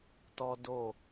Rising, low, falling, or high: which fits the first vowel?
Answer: high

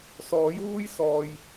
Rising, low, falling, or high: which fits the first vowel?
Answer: rising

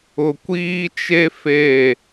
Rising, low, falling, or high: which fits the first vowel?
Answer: low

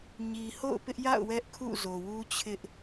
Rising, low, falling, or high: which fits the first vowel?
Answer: low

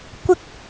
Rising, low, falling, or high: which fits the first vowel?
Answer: high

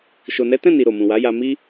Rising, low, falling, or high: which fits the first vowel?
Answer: low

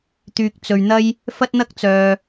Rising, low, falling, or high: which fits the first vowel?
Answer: low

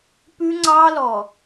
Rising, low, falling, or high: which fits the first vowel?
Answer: high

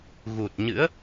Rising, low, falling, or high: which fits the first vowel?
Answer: low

